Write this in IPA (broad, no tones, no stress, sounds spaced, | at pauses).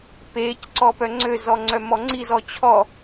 p eː c ǀ ɔ p œ ŋ͡ǀ ø z ɔ ŋ͡ǀ œ m ɔ ŋ͡ǀ i z ɔ t͡ɕʰ ɔ